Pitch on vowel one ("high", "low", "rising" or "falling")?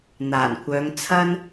low